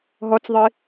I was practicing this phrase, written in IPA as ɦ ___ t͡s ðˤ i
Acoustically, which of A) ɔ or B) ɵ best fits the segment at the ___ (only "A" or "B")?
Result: A